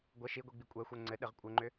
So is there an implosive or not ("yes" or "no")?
yes